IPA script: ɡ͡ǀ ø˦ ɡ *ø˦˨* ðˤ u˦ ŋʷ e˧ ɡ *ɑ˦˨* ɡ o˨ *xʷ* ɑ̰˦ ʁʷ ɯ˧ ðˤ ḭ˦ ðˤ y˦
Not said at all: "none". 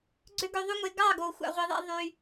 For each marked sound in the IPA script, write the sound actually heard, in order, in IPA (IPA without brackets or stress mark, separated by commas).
ø˧, ɑ˦˨, xʷ